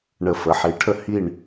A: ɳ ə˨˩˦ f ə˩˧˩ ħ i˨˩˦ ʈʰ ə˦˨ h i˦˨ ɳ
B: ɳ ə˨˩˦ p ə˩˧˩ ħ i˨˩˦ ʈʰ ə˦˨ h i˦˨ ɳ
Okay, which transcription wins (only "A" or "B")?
A